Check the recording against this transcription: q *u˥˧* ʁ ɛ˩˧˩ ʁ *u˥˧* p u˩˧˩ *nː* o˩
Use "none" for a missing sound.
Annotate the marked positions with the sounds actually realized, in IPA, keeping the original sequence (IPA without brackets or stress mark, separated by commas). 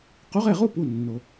u˨˥, u˥˧, nː